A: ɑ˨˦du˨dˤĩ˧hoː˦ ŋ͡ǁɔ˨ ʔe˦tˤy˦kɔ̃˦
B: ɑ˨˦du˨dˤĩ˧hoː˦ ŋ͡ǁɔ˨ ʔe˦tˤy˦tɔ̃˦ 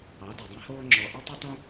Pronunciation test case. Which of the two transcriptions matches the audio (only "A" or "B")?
B